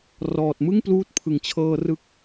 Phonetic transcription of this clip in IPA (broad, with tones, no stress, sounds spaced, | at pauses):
r ɔː˨˩ t̚ m ɯ˥˩ ŋ p l uː˦˥ t̚ pʰ ɯ˨˩ ŋ t͡ɕʰ ɤː˧ r ɯ˦˥ k̚